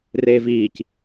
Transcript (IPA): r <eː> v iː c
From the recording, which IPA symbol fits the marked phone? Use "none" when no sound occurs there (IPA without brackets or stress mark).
eː